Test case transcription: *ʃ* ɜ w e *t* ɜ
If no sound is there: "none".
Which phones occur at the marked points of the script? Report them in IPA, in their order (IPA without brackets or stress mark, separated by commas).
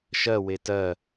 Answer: ʃ, t